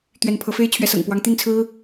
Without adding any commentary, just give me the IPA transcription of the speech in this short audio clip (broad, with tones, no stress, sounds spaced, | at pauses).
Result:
t̪ ɥ ɛ˨˦ n pʰ ɤ˨˦ f e˦ ɪ̯ t͡ɕʰ ɥ ɛ˨˦ s ɤ̰˨˩ ŋ p w ɑ˨˦ ŋ t̪ i˥˨ n t͡sʰ ɹ̩˦